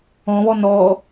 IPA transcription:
ɔ̃ β ɔ n ɔ

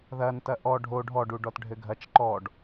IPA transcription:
ð ɐ n t ɐ ʔ ɔ ɖʱ o ɖʱ ɔ ɖ u ɖ ɔ t ɖʱ ɘ ɡʱ ɐ t͡ʃ ǃ ɔ ɖ

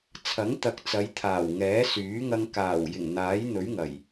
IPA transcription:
t͡sʰ ɐ˨˥ ŋ t̪ ɐ˨˥ k̚ t͡s ɐ˨˧ j t̪ʰ aː˨˩ w ŋ ɛː˨˥ s yː˨˥ ŋ ɐ˧ ŋ k aː˨˩ w j ɪ˨˩ ŋ n̪ aː˨˥ j n̪ ɵ˨˥ ɥ ŋ ɐ˨˩ j

